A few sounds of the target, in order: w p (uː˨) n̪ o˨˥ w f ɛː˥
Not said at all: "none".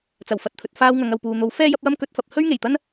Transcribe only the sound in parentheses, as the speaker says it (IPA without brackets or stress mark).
uː˨